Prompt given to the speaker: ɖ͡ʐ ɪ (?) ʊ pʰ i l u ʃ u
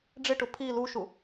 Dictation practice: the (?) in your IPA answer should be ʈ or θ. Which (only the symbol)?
ʈ